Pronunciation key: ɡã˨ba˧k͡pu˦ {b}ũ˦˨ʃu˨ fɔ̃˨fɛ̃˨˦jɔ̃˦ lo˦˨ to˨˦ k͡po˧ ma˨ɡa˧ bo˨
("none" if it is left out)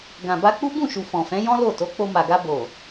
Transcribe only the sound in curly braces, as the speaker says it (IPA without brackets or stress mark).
b